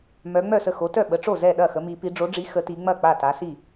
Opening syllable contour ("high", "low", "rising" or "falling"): rising